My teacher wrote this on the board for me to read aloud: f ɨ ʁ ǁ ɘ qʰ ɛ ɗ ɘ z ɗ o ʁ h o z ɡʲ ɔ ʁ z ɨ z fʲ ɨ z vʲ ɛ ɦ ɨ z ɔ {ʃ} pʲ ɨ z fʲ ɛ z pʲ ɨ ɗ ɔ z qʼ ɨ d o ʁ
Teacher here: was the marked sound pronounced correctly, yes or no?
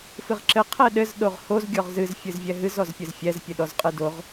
no